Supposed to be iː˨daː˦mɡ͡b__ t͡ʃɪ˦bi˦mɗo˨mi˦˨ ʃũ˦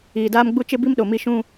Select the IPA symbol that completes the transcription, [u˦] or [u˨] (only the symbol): u˦